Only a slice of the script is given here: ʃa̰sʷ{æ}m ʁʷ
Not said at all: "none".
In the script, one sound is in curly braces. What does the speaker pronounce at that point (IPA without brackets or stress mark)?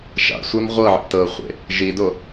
æ